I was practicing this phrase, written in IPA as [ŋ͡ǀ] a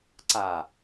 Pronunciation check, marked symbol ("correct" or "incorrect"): incorrect